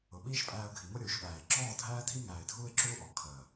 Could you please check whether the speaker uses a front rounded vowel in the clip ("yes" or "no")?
no